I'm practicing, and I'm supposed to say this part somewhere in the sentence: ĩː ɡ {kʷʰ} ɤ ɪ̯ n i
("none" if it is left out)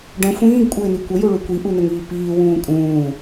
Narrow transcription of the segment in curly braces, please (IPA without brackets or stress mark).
kʷʼ